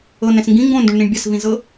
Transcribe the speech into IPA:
ɤ n ɛ̃ s ŋ ɡ ĩ ŋ ɡ õ n d ũ ɳ n ĩ ɳ bʲ a s v ĩ z ɤ

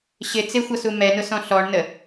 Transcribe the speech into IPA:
ɕ ɪ t͡s ɪ xʷ ʌ s u m ɛ n ʊ s ɔ̃ ɬ ɔ ɳ n ə

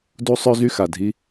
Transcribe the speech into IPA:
d u˦ sˤ œ˦ z y˦ x a˨ dʱ i˦

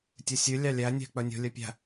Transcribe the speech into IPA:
tʲ œ sʲ ʉ lʲ ɑ lʲ æ nʲ æ̤ k͡p œ nʲ o̤ lʲ œ pʲ æ̤

